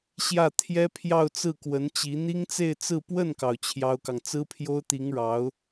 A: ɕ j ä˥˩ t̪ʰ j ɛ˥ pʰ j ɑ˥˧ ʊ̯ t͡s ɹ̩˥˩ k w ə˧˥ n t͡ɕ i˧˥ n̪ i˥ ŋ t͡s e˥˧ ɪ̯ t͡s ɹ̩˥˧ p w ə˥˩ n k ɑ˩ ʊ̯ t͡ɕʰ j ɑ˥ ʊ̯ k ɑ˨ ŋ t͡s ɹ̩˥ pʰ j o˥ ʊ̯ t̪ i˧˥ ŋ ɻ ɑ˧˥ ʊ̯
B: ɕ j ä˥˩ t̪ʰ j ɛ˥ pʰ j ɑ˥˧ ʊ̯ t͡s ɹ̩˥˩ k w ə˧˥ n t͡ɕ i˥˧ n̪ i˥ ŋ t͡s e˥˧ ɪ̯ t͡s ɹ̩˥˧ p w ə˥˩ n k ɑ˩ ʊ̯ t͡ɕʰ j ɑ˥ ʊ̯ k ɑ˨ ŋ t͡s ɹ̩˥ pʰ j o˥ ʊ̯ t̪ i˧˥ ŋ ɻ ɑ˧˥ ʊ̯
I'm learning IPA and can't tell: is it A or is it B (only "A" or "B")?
A